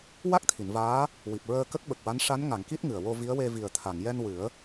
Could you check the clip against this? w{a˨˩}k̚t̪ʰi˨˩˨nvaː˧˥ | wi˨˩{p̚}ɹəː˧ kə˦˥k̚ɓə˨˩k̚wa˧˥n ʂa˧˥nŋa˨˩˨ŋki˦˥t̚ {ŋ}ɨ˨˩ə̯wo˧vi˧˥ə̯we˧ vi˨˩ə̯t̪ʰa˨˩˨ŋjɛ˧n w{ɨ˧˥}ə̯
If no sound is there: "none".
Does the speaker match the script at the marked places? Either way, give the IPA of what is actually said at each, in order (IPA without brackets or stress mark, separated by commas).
a˦˥, p̚, ŋ, ɨ˨˩˦